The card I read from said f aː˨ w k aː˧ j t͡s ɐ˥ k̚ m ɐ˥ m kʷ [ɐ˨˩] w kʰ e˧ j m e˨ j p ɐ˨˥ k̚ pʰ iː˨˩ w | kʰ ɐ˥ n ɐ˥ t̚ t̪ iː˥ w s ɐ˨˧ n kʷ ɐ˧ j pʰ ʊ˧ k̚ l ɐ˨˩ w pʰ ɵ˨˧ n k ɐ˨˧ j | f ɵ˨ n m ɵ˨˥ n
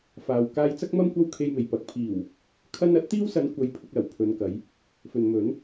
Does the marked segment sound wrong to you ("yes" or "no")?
yes